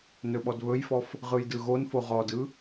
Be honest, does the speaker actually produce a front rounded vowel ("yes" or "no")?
no